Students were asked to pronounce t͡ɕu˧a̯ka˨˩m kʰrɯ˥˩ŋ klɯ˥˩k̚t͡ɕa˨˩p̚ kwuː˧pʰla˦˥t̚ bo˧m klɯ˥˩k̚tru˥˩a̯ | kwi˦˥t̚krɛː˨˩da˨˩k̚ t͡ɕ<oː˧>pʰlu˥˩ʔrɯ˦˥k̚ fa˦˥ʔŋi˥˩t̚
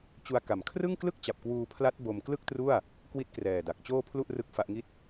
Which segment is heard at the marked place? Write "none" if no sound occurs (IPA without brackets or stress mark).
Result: oː˥˩